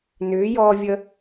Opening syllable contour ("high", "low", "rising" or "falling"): rising